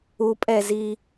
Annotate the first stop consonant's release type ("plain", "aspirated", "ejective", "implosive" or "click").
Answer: ejective